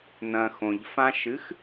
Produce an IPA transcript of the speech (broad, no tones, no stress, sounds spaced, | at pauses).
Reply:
n ɐ̃ x õ ʎ f ã ʃ ɨ x